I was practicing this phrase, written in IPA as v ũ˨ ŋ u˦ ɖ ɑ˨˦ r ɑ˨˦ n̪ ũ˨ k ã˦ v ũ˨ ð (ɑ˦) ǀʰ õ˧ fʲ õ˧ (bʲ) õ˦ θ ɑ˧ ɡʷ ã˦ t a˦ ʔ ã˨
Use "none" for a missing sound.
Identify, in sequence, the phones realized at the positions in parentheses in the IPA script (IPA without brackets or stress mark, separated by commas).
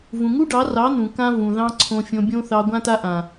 ɑ̃˦, bʲ